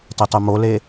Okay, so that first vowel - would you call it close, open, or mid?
mid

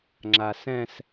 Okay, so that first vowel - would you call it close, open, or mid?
open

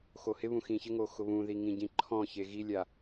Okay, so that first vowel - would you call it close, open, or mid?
mid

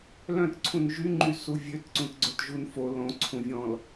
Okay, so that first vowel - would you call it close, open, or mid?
mid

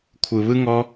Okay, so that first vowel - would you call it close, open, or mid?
close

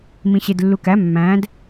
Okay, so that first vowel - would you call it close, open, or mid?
close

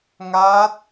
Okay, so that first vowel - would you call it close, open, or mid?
open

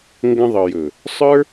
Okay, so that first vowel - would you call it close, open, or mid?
mid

